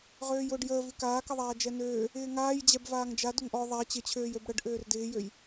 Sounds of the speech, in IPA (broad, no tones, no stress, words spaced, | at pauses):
ʁøːjʊːɖjəː vʉkaːkəðˤaː d͡ʒɛnøː | ɪːŋaːj d͡ʑɛbvaːŋd͡ʒa dʊŋʔɔ ðˤa t͡ɕɪt͡ɕʰøːj øbɽəɖ ʔøːrdɪːjøj